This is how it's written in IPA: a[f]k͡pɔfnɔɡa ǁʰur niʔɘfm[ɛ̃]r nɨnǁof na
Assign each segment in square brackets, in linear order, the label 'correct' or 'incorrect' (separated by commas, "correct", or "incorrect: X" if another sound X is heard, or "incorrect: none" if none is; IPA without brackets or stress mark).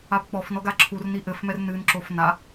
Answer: incorrect: b, incorrect: ɛ